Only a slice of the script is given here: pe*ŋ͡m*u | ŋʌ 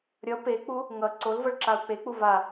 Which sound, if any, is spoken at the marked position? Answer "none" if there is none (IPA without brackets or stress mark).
k͡p